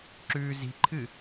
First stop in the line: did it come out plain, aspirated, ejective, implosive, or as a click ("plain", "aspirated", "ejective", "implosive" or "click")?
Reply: click